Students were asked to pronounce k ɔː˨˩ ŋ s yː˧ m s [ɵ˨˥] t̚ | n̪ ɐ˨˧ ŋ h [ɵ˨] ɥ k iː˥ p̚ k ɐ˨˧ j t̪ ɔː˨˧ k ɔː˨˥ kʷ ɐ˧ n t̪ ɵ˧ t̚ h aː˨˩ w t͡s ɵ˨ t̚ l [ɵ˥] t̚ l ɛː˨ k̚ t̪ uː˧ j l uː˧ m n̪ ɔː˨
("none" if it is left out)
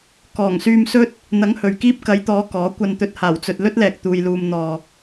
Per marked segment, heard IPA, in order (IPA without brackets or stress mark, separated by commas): ɵ˥, ɵ˨, ɵ˥